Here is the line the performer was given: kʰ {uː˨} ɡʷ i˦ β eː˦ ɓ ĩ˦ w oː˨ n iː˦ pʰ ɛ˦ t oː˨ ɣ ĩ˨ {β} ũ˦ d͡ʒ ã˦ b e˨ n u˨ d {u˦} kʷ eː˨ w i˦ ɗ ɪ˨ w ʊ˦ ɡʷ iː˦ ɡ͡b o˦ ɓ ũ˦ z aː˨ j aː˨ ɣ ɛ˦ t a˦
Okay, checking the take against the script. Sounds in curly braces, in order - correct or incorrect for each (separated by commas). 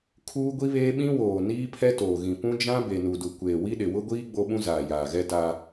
incorrect, incorrect, incorrect